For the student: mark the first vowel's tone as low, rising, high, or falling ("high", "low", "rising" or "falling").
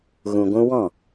low